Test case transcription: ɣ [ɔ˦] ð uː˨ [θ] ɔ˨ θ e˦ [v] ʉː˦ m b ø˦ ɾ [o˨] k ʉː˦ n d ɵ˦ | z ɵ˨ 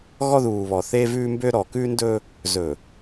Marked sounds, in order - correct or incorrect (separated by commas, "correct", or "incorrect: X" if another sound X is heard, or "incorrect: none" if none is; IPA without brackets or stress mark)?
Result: correct, incorrect: β, correct, incorrect: ɔ˨